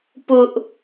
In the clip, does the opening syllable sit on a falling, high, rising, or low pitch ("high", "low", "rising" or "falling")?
high